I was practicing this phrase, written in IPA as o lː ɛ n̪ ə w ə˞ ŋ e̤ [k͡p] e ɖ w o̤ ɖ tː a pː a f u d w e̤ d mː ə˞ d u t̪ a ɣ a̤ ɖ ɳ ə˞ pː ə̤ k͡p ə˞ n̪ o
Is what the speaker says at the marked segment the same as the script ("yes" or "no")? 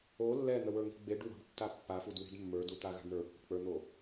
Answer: no